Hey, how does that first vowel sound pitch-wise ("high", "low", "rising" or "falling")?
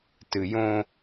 low